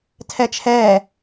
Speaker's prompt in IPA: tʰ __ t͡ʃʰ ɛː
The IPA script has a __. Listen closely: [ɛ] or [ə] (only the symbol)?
ɛ